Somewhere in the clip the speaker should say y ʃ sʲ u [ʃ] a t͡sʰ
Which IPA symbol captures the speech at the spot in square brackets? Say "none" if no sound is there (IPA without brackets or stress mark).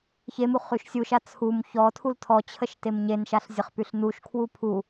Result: ʃ